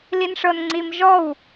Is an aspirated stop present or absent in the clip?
absent